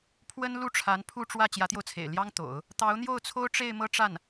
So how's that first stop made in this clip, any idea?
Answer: aspirated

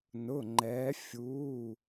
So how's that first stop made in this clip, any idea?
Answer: click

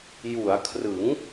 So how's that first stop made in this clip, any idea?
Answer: aspirated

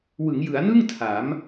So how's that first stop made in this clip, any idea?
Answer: aspirated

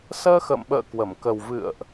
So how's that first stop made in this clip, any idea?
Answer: implosive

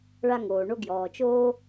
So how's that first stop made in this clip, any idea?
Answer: plain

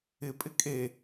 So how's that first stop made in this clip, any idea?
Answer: ejective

